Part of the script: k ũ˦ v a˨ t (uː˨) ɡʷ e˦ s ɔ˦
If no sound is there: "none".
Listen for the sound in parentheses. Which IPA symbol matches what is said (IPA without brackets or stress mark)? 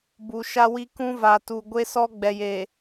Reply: u˨